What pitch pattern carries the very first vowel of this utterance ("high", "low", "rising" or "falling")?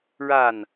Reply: falling